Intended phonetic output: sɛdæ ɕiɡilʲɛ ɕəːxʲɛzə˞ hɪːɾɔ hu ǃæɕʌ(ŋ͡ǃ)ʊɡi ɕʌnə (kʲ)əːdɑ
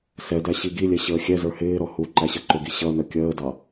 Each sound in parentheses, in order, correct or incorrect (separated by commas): incorrect, correct